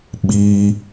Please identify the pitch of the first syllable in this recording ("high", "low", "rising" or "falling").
high